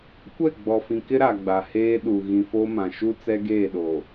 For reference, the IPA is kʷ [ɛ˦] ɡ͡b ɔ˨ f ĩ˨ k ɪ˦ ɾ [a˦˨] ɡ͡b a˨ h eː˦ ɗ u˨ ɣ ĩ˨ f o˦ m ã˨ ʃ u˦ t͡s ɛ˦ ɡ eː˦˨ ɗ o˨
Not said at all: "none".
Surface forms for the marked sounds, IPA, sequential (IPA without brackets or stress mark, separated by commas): ɛ˦˨, a˨